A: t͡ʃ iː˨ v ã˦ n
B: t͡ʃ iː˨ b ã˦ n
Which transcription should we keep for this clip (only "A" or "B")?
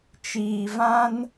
A